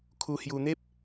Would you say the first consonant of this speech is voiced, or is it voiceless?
voiceless